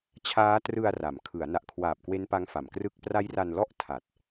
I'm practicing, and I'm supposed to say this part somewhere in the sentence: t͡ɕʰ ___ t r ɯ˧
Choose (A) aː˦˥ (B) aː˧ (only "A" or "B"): A